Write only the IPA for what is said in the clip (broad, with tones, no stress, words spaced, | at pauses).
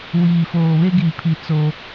wiː˨foː˨βe˦ɡiː˨ pʰi˨ t͡soː˦